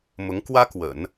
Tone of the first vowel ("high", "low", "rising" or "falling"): rising